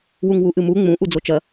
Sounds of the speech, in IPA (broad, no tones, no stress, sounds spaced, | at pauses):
w u ŋ w u ʔ ɨ m u ŋ͡m ũ ʔ u d͡z o t͡ʃ ɐ